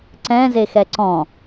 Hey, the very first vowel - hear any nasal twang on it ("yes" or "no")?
yes